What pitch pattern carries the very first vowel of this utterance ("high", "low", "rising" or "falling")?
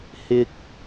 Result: high